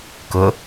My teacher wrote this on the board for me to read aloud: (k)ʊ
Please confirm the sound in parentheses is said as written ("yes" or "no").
yes